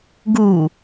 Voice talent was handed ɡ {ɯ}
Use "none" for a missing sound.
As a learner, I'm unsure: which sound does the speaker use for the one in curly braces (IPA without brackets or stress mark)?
u